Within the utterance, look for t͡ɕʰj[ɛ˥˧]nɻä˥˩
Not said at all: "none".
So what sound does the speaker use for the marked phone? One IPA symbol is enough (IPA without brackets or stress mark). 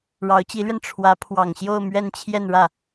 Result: ɛ˥˧